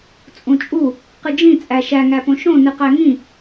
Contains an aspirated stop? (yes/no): no